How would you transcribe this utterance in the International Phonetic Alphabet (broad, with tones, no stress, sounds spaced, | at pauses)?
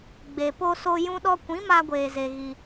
ɡ͡b e˨ p o˧ s o˧ j ũ˧ ɗ ɔ˧ kʷ ĩ˨˦ m a˧ ɡʷ eː˨ z e˨ ɣ i˧